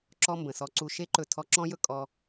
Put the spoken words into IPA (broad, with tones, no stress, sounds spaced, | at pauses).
ǁ ɔ˦ m b ə̃˨ s ɔ˧ ǀ u˧ ʃ e˦ ǃ ɵ˧ tʰ ɔ˧ ǁ ɔ̃˦ j ɵ˦ kʼ ɔ˧